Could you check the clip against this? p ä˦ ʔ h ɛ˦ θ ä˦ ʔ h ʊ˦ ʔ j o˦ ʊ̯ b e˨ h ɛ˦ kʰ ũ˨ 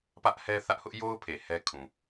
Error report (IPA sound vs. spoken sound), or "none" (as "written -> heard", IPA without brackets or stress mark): b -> pʰ